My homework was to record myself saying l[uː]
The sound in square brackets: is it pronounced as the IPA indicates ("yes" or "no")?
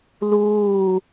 yes